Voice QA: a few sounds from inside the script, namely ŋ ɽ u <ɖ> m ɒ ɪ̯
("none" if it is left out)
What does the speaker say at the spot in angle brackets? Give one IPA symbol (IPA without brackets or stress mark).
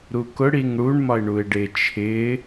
ɳ